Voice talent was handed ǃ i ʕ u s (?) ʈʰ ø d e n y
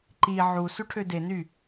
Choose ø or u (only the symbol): u